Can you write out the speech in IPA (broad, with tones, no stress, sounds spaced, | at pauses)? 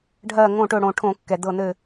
ɖʱ ɜ˧˩ ŋ õ˧˩ ʈ ɵ˧˩ ɽ õ˧˩ ʈʰ õ˧˩˧ kː ɛ˩ d̪ ɤ˧˩ n̪ ɘ˧˩